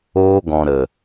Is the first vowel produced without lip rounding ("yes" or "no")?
no